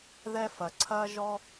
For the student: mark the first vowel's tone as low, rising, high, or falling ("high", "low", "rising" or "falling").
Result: high